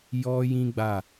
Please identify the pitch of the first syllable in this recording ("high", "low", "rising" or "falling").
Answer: high